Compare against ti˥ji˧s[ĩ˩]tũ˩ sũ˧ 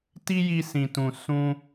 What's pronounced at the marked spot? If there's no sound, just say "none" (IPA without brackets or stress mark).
ĩ˩